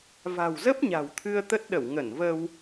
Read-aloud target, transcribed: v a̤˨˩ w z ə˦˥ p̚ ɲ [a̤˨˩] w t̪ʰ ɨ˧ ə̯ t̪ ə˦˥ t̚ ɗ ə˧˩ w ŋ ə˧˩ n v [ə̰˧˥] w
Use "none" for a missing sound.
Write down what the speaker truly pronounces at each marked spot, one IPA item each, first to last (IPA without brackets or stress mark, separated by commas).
a̤˨˩, ə˧